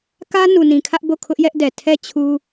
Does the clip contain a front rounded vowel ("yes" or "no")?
no